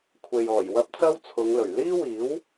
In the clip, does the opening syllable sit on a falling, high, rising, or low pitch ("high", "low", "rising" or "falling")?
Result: low